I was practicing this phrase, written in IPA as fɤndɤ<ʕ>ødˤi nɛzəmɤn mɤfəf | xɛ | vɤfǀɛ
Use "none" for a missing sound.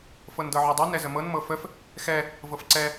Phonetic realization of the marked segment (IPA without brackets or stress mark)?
ʕ